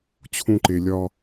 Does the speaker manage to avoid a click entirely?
no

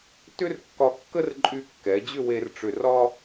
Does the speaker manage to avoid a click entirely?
no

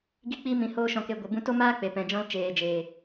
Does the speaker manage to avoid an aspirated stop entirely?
yes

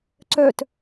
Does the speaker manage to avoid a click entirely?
no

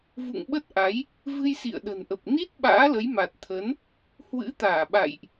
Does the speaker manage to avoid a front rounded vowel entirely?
yes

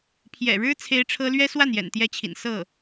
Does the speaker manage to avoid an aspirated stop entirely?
no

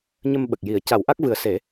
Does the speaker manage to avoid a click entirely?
yes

